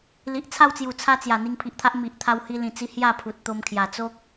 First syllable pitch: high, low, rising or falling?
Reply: low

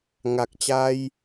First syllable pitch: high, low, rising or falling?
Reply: low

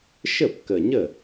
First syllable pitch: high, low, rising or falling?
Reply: falling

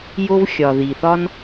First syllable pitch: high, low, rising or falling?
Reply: high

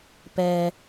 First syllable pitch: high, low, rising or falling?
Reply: low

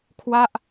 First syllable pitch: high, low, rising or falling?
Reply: falling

